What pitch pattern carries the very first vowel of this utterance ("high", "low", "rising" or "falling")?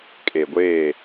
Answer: low